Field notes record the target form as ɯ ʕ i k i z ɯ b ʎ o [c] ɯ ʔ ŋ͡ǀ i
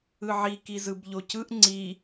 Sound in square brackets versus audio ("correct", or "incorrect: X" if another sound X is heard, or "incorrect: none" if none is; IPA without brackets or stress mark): correct